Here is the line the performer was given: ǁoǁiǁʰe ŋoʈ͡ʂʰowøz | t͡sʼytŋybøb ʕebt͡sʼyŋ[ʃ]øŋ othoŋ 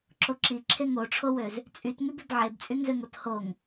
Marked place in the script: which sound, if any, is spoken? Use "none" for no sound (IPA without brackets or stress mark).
z